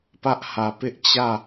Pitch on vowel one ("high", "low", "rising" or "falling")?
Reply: high